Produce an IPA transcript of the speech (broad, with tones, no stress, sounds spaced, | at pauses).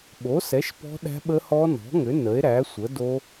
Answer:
ɓ o˩˥ s ɛ˩˥ ʃ p ɔ̤˦˥ ɗ æ̤˦˥ ɓ ə˦˥ h ɔ˦˥ n ɔ̤˩˥ ŋ ʏ˩˥ n ə˩˥ e̯ ɾ æ˩˥ sʷ ə˩˥ d o˦˥